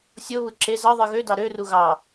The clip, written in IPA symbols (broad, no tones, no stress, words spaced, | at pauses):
sʲoβɯ ǁe zɑðˤɯ ɣødɑ ɾøru ɣɑ